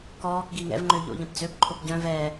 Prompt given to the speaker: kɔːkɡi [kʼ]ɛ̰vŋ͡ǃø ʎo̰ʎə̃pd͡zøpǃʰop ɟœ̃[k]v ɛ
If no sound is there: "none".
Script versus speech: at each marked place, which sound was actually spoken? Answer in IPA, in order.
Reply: ŋ, none

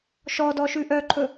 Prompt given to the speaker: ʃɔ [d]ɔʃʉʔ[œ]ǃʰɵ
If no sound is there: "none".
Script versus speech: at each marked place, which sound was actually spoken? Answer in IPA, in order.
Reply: d, œ

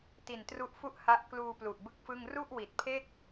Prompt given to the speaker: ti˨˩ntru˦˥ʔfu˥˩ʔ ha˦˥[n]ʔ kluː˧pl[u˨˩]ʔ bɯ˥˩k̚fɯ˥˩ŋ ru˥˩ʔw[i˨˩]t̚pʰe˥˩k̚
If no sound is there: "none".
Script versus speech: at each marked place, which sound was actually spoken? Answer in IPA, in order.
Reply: none, u˨˩, i˨˩

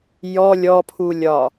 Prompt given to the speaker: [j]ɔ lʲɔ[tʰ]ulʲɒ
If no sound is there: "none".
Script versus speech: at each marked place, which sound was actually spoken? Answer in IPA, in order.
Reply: j, pʰ

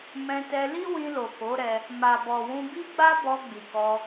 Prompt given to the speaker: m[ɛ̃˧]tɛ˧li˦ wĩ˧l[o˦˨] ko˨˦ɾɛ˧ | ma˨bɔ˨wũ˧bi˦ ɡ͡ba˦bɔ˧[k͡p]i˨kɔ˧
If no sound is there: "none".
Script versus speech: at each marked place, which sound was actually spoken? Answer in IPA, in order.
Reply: ɛ̃˧, o˨, ɡ͡b

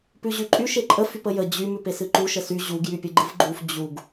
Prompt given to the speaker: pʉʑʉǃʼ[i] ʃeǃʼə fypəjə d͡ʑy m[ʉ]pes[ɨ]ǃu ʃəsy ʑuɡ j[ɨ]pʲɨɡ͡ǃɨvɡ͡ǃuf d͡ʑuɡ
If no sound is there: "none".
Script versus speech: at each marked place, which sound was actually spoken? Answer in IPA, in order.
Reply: y, ʉ, ɨ, y

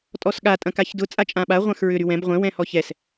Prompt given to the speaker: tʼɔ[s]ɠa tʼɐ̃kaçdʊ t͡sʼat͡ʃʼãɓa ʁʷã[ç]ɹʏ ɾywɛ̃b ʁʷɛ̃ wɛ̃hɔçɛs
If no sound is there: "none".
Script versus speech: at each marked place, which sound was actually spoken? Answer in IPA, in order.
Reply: s, x

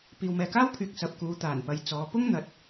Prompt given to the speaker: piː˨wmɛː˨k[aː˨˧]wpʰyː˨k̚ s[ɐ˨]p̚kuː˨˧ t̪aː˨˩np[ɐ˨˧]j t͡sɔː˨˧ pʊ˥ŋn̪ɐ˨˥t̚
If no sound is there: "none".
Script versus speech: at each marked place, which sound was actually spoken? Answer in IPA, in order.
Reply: aː˥, ɐ˨, ɐ˨˧

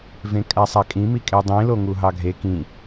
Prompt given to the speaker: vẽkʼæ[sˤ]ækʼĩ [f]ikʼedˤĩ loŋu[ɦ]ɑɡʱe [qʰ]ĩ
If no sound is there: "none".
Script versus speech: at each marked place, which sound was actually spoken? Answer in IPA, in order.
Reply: sˤ, m, ɦ, k

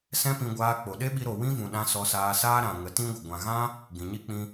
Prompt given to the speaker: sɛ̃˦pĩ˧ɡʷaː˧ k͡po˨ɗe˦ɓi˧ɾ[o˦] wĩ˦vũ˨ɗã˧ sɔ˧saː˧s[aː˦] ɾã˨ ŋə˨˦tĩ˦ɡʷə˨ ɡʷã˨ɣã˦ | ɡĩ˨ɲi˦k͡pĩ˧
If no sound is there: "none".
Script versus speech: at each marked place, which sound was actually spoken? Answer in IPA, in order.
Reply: o˨, aː˦

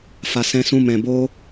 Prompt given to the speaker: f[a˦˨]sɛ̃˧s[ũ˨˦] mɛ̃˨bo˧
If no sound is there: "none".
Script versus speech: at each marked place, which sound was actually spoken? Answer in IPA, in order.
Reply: a˨, ũ˧

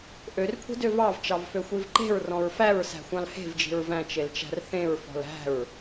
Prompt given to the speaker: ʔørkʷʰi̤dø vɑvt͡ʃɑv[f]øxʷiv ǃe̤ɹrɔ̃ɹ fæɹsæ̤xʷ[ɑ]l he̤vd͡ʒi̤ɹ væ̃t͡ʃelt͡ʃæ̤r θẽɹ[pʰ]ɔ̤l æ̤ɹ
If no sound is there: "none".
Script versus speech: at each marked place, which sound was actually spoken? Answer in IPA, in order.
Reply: f, ɑ̃, f

